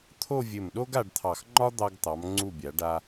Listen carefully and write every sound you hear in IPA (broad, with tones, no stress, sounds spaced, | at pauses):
t̪ʰ o˥˧ vʲ ɘ˧˩ m ɗ o˥ ɡ a˧ ɖ t̪ʰ ɑ˧˩ x ŋ͡ǃ ɒ˥ d̪ ɑ˧ ɡ t̪ ɑ˩˧ m ŋ͡ǀ u˧˩ bʲ a˩˧ ɖ a˧